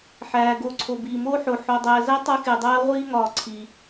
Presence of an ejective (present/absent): absent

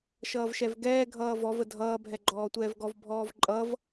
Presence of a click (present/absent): present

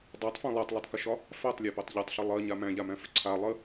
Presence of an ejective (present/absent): absent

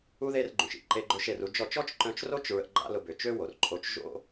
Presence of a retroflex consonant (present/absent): absent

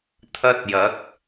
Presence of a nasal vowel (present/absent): absent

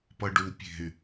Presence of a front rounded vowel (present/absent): present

